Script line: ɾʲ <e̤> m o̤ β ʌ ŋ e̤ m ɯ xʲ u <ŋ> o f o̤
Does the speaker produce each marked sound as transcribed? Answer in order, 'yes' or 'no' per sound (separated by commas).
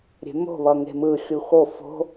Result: yes, no